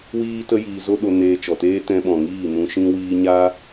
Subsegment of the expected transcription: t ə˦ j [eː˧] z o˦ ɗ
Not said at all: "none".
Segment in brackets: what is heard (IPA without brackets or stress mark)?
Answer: iː˧